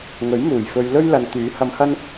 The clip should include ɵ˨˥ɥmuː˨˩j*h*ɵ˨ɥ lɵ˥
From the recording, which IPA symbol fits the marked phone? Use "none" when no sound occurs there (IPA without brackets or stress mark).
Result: f